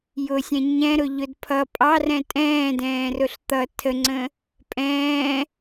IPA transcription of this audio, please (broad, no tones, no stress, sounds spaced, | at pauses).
j ʊ sʲ ɛ̃ ɲ ɛ̃ ɾ ʊ ʎ ʊ d pʰ ʌ pʼ ɑ r ɛ̃ tʼ ɛ̃ː d ɛ̃ː r ʊ ɬ t̪ ʌ tʰ ə ŋ͡ǀ ə̃ | pʼ ɛ̃ː